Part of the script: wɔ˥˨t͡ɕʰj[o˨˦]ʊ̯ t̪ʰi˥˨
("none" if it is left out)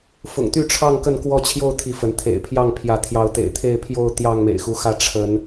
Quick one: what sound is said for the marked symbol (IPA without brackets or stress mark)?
o˥˨